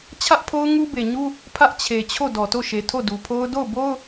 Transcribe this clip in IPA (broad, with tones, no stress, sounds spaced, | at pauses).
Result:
t͡ɕʰ ä˦ ʔ pʰ o˦ ʊ̯ ŋ u˦ b e˨ ɲ u˦ | pʰ ä˦ ʔ t͡ɕʰ e˨ t͡ɕʰ o˦˨ d ɔ˨ t o˦˨ ʃ e˨ tʰ o˦˨ d u˨ pʰ o˦ ʊ̯ d o˦˨ ʊ̯ b o˦ ʊ̯